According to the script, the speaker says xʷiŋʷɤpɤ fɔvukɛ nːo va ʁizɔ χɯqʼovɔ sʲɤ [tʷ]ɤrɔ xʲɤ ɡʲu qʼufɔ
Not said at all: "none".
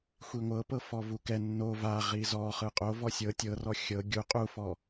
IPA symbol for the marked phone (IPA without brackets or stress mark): tʲ